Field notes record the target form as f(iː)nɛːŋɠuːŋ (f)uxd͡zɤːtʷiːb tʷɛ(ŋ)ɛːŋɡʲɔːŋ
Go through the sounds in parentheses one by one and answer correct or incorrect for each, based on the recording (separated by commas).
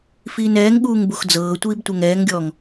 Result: correct, incorrect, correct